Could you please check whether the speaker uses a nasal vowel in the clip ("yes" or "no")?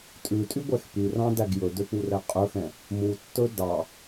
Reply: yes